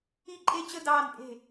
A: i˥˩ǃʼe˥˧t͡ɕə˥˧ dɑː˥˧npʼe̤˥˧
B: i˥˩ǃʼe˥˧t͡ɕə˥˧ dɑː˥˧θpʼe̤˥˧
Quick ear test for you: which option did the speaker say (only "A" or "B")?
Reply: A